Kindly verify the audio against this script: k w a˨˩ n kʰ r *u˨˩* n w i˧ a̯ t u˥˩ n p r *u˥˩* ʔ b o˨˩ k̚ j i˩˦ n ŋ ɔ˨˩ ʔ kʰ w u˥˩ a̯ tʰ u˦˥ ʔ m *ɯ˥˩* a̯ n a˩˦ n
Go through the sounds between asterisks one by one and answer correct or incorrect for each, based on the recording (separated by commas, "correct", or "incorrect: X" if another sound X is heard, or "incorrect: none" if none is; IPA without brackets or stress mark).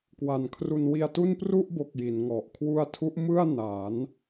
incorrect: u˧, correct, correct